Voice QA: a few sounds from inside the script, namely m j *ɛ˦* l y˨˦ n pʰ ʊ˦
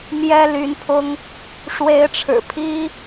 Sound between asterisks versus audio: correct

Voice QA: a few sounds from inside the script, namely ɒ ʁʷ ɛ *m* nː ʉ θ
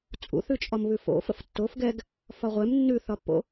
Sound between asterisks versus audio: correct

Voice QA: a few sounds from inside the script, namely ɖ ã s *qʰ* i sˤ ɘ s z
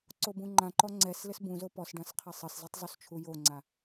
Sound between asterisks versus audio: correct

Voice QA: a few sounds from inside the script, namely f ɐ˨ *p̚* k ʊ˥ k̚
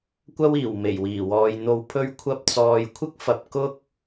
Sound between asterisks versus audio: correct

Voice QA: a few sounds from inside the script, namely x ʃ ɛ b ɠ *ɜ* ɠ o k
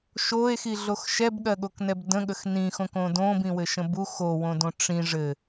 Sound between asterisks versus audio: correct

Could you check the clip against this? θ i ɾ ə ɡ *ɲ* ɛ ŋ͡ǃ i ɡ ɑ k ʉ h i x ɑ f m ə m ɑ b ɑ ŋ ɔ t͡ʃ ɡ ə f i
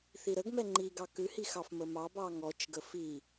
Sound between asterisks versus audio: incorrect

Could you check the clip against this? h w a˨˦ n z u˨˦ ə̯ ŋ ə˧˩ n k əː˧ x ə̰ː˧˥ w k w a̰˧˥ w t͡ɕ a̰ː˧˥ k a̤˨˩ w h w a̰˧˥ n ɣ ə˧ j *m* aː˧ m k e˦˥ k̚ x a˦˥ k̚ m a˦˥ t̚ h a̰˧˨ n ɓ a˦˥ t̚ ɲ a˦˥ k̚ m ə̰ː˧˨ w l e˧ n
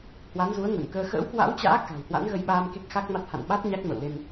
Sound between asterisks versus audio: incorrect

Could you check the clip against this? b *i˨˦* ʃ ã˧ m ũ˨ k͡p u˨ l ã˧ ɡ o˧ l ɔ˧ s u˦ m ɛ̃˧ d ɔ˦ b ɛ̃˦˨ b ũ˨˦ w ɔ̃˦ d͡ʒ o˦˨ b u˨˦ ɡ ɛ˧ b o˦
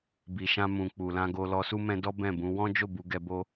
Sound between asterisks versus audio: incorrect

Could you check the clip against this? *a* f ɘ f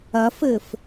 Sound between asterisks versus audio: incorrect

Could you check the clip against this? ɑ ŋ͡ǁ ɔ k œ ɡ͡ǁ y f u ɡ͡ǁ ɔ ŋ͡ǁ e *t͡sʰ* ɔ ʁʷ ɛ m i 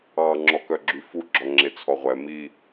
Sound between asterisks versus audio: correct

